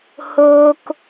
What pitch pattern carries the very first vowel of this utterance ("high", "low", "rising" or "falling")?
high